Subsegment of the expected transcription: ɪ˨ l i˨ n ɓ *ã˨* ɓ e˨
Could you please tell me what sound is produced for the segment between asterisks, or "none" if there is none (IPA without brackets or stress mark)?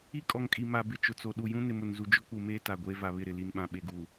ã˨